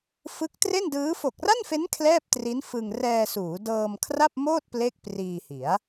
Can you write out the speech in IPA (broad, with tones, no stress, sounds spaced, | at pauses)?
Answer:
f ɯ˦˥ k̚ t r e˥˩ n d ɯː˦˥ f o˨˩ k̚ r a˥˩ n f e˦˥ n kʰ l ɛː˥˩ p̚ t r i˦˥ n f ɯ˧ ŋ r ɛː˧ s uː˩˦ d ɤː˧ m kʰ r a˥˩ p̚ m oː˥˩ t̚ p l e˥˩ k̚ p r iː˧ h i˩˦ a̯